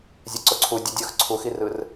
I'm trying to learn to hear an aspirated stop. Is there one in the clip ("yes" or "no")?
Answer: yes